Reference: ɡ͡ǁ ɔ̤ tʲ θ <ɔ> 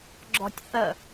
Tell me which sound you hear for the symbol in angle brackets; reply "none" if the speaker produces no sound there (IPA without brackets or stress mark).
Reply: ə